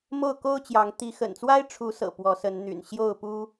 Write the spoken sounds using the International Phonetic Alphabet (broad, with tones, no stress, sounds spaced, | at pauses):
m o˥˨ ʊ̯ k o˦ ʊ̯ t͡ɕ j ɑ˨˦ ŋ t̪ i˨˦ x ə̰˨˩ n t͡s w a˦ ɪ̯ ʈ͡ʂʰ u˨˦ s ɤ̰˨˩ p w ɔ˨˦ s ə˨˦ n n̪ y̰˨˩ n ɕ j o˥˨ ʊ̯ p u˦